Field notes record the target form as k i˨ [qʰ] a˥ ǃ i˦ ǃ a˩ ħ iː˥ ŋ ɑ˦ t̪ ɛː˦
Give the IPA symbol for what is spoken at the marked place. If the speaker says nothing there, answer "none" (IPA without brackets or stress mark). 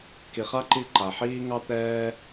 χ